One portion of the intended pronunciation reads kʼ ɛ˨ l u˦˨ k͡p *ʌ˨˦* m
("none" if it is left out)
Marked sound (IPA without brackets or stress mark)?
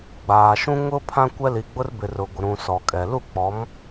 ɔ˨˦